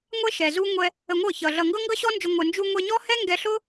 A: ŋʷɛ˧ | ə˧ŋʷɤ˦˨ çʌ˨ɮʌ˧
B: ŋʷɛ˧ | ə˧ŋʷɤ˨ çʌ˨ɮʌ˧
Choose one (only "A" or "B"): A